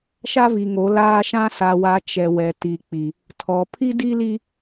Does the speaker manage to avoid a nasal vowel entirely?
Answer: no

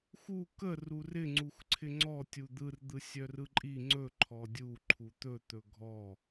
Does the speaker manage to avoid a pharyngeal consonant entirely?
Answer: yes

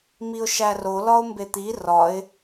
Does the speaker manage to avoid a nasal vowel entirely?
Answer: yes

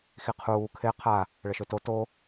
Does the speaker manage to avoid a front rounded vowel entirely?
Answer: no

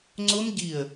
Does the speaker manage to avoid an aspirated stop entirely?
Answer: yes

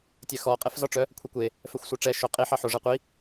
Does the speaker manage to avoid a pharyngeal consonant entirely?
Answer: no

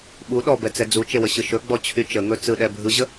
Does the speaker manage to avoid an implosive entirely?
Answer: no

